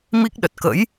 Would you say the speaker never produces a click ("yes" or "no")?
yes